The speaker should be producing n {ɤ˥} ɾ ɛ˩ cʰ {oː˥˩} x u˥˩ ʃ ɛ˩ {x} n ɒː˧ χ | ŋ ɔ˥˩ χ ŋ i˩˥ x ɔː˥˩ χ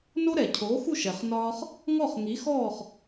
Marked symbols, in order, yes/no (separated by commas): no, no, no